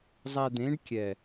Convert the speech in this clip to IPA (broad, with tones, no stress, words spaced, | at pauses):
zˤɛ˧d̪ẽ˨˦ɖkʲɛ˨